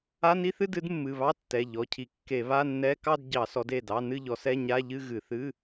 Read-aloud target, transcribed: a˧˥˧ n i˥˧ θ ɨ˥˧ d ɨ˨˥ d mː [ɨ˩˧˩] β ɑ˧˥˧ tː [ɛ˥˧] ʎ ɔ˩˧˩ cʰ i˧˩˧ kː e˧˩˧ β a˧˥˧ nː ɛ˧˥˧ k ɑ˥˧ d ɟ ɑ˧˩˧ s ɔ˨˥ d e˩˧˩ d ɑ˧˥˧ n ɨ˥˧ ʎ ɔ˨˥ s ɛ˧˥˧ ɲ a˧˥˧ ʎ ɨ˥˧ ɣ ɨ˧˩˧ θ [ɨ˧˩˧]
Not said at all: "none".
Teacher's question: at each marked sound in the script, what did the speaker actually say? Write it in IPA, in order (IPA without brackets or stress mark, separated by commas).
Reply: ɨ˩˧˩, ɛ˩˧˩, ɨ˧˥˧